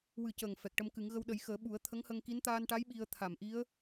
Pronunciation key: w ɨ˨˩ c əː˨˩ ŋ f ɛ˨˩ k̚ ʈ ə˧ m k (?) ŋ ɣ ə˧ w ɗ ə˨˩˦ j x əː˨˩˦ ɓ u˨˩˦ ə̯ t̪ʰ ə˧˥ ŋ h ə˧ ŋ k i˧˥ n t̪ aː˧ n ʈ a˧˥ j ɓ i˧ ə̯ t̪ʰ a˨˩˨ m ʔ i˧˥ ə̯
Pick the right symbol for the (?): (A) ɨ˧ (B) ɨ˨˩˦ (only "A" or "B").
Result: B